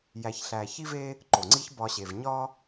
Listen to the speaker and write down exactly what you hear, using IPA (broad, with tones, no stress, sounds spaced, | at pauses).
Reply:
j æ˧ ç ɬ æ˧ ç i˦ v e˦ | ǃ o˨ ŋ͡ǀ i˦ ç b ɒ˧ ɕ e˨ v ɲ ɒ˦